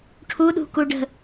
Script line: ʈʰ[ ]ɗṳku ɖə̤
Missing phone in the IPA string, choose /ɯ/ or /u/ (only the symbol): u